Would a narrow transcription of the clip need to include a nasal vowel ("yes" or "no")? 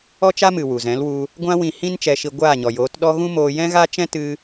yes